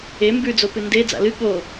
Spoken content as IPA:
e m b ʉ d͡z o p ɨ n d e d͡z a̰ l ɨ ɠ o

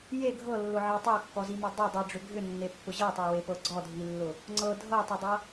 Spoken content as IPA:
j e ɡʱ ɤ lː ʊ ʕ i tˤ ɑ kː ɔ z i m i dˤ ʏ dˤ i ɖ͡ʐ ʏ ɡʱ ʏ nː e pː ʊ ʑ ɤ tˤ ɤ w e p ɤ ɡ͡ǀ ɔ dʱ i lː ʊ | ŋ͡ǀ ɤ dʱ ɤ tˤ ʏ dˤ ɤ

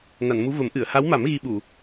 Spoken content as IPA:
n a˨˩˨ n m u˧˥ v ə˨˩˦ m ʔ ɨ˨˩˨ ə̯ h a˧˥ w m a˨˩˦ m ɣ i˧ ɓ u˨˩˨

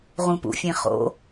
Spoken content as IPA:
ʁ ũ p ṵ fʲ ẽ χ o̰

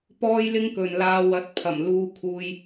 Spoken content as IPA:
p ɔː˥ j l ɪ˥ ŋ k ɵ˨ n l aː˧ w ɐ˨˥ t̚ pʰ ɐ˨˩ m l uː˧ kʰ uː˧ j

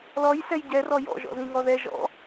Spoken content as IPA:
l ɔ j s ɛ j ɟ ɛ r ɔ j ɔ̰ ʒ ɔ̰ z ĩ ŋ ɔ ð ɛ ʒ ɔ̰

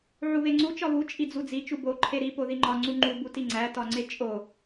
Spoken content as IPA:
ʕ u β e ŋ͡ǀ u t͡ʃ ɒ β u t͡ʃʼ i d͡z u d͡z i t͡ʃ u b o ǃʰ e ɾ i p o ð i ŋ͡ǃ ɒ ŋ͡ǀ u ŋ͡ǃ u b u t i ŋ͡ǀ æ t ɒ ŋ͡ǀ e t͡ʃʼ o

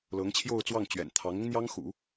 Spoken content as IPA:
l ɤ˧˥ ŋ t͡ɕʰ j o˥˧ ʊ̯ t͡s w ɑ˥˩ ŋ t͡ɕ ɥ ɛ̰˨˩ n t̪ʰ ɑ˧˥ ŋ ʊ˥ ŋ n̪ j ɑ˥ ŋ x ṵ˨˩˦

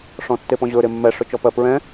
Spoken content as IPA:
ʂ ɔ̃ tː e p ɔ̃ ʑ ɵ ɾ e mː ɛ ʂ ɵ t͡ʃ ɔ p ɜ p ɹ ɛ̃

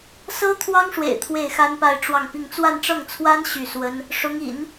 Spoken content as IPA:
s ɤ˥ t̪ʰ w ɑ˥ ŋ ʂ w ḛ˨˩ ɪ̯ t̪ʰ w e˥˩ ɪ̯ x a˥ n p a˥˧ ɪ̯ ʈ͡ʂ w ɑ˥˧ ŋ p i˥˧ ŋ t͡s w a˥˧ n ʈ͡ʂ ɤ˥˩ ŋ t͡sʰ w a˥ n ɕ y˥˩ s w ə˥ n | ʂ ʊ˧˥ ŋ ḭ˨˩˦ n

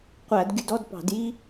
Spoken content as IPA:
qʷ æ˧˩˧ d ɡʲ u˧ d ɔ˧˥˧ d p ɑ̤˧˩˧ d j i˥

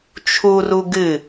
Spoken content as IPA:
t͡ʃʰ u r u ɡ ɨ

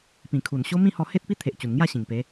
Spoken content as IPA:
p ĩ˨˩ kʰ u˨˩ n ɕ o˦ m ĩ˥˧ h ɔ˧ h e˦ t̚ p i˦ t̪ʰ e˨ ʔ t͡ɕ u˨˩ n ŋ j a˥˧ ɕ ĩ˨˩ ŋ p e˨˦

